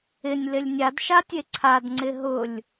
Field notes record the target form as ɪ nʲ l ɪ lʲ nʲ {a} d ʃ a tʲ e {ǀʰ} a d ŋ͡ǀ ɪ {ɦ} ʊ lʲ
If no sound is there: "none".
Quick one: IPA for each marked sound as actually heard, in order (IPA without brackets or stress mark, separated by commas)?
a, ǀʰ, ɦ